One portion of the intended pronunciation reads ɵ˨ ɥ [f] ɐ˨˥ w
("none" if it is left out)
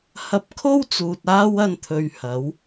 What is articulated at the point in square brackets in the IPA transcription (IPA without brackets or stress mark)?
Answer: h